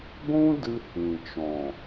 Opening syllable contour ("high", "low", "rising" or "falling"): high